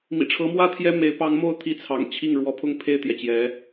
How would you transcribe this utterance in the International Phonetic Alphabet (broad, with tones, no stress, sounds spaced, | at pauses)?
m ḭ˨˩ ʈ͡ʂʰ ɤ˧˥ m w ä˥ t̪ʰ j ɛ˥ m e˧˥ ɪ̯ p ɑ˧˥ ŋ m o˥˩ ʊ̯ t̪ʰ i˧˥ t͡sʰ ɑ̰˨˩ ŋ t͡ɕʰ i˥˩ ŋ ɻ w ɔ˧˥ pʰ ʊ˥ ŋ pʰ e˥˩ ɪ̯ t̪ j ɛ˩ t͡ɕ j ɛ˧˥